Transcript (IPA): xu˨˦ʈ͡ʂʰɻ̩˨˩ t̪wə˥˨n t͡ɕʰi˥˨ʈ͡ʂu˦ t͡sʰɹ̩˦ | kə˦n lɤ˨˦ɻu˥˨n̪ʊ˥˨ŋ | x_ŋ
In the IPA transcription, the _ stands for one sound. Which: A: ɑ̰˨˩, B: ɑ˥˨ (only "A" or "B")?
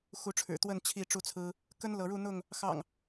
A